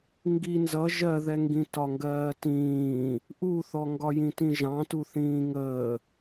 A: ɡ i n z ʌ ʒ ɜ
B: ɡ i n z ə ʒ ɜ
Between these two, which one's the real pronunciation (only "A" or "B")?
A